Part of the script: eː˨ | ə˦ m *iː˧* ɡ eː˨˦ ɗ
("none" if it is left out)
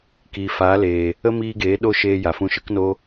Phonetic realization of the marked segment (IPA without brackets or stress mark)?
iː˧